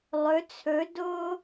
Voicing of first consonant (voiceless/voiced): voiced